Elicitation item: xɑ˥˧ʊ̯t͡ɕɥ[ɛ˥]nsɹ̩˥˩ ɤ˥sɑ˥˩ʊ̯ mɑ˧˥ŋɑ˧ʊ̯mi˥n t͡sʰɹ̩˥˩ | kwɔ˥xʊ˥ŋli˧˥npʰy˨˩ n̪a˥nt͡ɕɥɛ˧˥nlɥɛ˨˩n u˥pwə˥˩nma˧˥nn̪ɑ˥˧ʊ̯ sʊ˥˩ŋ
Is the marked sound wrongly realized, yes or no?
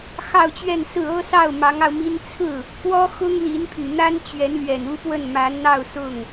yes